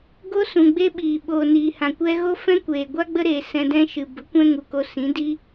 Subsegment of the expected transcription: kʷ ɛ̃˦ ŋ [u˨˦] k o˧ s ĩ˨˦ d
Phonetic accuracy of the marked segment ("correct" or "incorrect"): incorrect